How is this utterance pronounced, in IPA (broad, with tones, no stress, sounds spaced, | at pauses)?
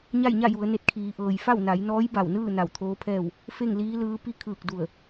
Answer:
ɲ a˥˨ j ɲ a˥˨ j u˩˧ ə̯ n e˧˩ t̚ kʰ iː˩˧ ʔ ɤː˩ j f a˥˨ w n a˩˧ j n ɔː˧˥ j b a˧˩ w n ɯː˥˨ n a˧˩ w t̪ʰ oː˧˥ pʰ ɛː˥˨ w | f e˥˨ ŋ l iː˧˥ l ɯː˧˥ p i˥˨ kʰ ɯː˧˩ k̚ d u˧˩ ə̯